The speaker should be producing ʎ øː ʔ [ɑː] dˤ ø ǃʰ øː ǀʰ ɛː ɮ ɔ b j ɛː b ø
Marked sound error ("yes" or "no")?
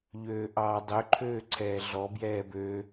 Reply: no